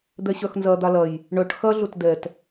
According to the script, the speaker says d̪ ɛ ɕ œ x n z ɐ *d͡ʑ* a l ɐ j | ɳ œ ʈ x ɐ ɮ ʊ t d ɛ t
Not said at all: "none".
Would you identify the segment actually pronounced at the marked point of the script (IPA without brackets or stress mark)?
d̪